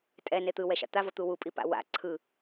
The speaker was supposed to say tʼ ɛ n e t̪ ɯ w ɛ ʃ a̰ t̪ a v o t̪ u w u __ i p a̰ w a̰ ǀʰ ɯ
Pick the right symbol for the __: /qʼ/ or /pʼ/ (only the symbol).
pʼ